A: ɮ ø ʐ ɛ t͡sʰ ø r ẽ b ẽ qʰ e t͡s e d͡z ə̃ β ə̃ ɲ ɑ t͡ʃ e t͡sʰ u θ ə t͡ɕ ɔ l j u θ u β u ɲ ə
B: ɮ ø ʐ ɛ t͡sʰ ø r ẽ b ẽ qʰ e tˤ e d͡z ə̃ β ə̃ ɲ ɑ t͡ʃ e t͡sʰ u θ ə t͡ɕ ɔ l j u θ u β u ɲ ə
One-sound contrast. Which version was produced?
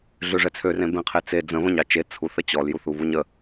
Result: A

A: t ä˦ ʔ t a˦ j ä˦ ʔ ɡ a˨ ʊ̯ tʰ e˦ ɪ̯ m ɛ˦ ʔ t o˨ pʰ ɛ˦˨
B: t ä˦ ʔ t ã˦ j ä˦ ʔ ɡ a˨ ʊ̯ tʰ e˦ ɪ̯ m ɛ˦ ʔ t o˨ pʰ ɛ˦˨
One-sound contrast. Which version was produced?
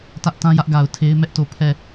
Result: B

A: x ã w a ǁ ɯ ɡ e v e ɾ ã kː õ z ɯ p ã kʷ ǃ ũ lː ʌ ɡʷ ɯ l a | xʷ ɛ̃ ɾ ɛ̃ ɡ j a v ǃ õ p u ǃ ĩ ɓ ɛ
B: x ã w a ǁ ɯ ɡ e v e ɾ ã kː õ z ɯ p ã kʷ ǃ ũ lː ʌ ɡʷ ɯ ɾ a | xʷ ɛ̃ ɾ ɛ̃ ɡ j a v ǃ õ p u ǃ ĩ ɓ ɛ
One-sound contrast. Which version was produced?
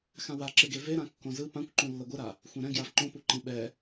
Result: B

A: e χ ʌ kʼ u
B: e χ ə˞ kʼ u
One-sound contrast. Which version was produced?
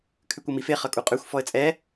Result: A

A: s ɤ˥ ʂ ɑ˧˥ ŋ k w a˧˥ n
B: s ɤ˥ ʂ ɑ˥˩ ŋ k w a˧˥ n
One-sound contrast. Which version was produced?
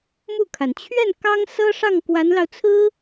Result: B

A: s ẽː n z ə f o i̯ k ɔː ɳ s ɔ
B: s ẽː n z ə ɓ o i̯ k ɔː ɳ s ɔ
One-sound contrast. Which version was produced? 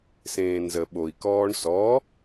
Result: B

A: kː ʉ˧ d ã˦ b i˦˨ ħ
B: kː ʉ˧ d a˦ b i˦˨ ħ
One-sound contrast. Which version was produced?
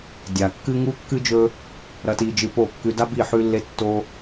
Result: B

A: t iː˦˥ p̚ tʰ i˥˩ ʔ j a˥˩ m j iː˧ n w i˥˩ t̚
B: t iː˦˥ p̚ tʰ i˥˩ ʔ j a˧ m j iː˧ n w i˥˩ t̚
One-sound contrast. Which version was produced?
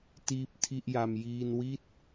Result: B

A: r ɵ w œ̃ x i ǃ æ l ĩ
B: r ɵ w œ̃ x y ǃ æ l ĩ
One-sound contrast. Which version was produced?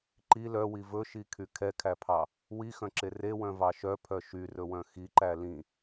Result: A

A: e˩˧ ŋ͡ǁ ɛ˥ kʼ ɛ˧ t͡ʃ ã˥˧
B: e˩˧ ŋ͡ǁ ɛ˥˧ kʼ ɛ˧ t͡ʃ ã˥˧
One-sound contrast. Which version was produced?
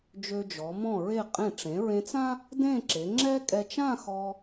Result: A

